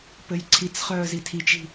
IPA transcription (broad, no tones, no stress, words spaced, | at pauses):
pɘjǀʰit͡sχœː zitʰit͡ʃi̤